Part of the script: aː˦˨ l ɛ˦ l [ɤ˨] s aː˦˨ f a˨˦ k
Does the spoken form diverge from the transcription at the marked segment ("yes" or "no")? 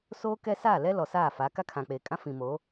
yes